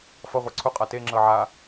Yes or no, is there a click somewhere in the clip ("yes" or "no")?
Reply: yes